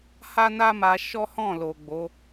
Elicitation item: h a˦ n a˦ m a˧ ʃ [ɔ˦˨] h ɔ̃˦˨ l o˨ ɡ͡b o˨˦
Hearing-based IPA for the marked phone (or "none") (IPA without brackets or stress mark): ɔ˦